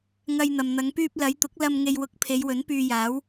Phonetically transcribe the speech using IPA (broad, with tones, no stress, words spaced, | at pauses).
ŋɐ˨j n̪ɐ˨mn̪ɐ˨˧ŋ pyː˧p̚ lɐ˨˧jt̪ʊ˨˥k̚ lɐ˧m ŋe˨jwʊ˨˥k̚ pʰe˨˧jwɵ˨˥npyː˧jaː˨˥w